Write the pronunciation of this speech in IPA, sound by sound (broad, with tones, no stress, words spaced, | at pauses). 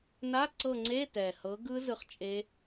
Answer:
na˧˥˧ ǀɤ˦˨ŋ͡ǀe˧˥˧ tɛ˨˩ hɤ˨˥ɡɯ˦˥ zɯ˦˨χt͡ʃʼe˦˥